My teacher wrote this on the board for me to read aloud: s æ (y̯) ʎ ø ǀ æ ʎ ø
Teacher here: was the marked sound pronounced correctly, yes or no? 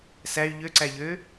yes